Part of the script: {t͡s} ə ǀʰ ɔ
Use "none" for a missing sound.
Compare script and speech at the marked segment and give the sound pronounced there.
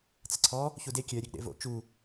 t͡s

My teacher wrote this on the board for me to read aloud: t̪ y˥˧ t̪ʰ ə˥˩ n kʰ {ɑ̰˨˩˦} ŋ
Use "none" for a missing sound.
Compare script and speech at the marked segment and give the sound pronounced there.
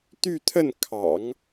ɑ̰˨˩˦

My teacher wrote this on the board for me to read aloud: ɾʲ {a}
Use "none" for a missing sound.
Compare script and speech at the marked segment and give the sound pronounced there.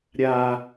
a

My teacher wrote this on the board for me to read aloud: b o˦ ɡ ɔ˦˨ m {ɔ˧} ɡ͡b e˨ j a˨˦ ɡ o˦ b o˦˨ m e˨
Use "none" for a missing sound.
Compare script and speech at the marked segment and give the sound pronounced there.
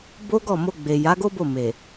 o˧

